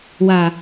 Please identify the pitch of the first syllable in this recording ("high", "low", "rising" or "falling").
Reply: low